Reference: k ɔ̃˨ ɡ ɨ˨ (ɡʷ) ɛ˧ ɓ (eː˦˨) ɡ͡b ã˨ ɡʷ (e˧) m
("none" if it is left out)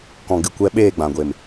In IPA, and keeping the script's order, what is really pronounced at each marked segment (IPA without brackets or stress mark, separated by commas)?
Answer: kʷ, eː˦˨, e˨